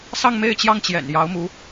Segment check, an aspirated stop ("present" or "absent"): absent